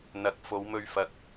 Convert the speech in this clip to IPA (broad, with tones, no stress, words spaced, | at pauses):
n̪ɐ˨˥k̚ fo˨˧wmɵ˧ɥfɐ˨k̚